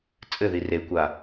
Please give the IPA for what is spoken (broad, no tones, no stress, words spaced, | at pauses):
t͡sʼɘði rekʷa